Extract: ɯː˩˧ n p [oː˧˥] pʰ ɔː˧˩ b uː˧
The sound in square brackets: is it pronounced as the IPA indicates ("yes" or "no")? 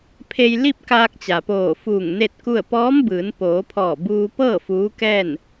no